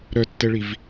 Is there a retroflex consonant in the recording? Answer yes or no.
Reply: yes